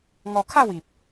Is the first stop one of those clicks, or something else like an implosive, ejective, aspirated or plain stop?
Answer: aspirated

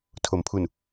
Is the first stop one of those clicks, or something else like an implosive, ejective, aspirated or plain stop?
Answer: aspirated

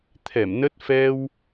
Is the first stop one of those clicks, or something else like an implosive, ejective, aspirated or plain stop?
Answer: aspirated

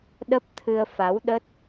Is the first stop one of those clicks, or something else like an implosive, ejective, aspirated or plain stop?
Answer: implosive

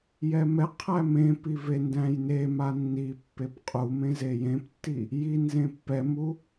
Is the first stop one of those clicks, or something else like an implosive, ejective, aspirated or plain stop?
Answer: aspirated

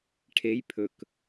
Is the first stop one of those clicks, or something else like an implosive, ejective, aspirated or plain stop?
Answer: aspirated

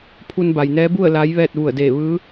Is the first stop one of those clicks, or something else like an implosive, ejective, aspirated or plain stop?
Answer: aspirated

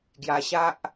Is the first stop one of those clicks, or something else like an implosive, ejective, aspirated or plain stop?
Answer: plain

